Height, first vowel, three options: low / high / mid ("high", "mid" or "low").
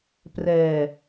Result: mid